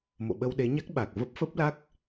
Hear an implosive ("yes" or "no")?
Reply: yes